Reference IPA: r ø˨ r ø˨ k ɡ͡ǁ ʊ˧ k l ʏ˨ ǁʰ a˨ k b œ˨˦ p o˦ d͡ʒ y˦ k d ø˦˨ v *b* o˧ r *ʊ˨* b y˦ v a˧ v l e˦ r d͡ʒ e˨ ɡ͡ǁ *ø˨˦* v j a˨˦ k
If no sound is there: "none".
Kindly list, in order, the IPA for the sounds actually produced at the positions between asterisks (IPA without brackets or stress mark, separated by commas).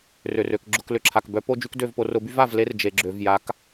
p, ʊ˧, ø˨